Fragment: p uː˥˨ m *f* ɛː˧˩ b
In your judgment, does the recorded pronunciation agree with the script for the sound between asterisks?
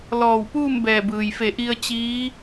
no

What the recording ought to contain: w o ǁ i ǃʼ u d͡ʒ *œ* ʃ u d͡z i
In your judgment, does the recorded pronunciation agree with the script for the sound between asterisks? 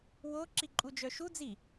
yes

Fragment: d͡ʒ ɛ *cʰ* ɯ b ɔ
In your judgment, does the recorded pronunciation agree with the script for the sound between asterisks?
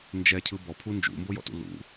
yes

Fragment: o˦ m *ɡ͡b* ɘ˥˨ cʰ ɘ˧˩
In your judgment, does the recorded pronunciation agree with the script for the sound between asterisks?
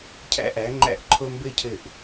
no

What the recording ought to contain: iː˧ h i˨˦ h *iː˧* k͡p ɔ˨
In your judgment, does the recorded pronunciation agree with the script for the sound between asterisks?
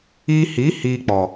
yes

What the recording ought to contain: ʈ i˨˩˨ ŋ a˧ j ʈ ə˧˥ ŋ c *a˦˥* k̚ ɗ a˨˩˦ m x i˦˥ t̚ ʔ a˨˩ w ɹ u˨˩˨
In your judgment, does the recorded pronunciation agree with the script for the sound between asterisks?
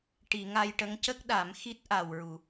no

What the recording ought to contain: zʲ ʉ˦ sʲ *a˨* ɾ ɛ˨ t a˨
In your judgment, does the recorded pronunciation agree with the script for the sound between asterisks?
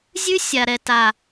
yes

